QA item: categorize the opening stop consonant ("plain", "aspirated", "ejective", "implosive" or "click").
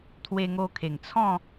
aspirated